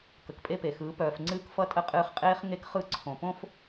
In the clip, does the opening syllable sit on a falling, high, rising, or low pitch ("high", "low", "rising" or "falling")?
low